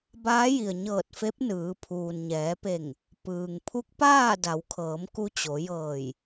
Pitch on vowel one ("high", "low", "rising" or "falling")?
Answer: rising